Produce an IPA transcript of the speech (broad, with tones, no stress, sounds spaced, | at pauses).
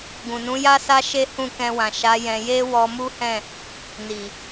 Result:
ɡ ũ˨ n ũ˨˦ j a˦ s a˦ ʃ e˦ h ũ˦˨ k ɛ̃˧ w ã˨ ʃ a˨˦ j ɛ̃˧ j e˦ w ɔ˧ m u˦ h ɛ̃˦˨ | n i˨